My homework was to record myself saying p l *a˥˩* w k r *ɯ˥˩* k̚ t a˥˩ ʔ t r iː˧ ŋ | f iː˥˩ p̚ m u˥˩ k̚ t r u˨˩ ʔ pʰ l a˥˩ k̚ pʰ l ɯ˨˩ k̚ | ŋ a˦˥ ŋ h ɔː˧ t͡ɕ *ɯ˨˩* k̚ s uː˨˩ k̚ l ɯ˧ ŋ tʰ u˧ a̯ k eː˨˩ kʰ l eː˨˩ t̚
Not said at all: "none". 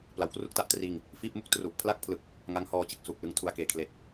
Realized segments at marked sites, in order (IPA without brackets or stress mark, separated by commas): a˩˦, u˥˩, ɯ˨˩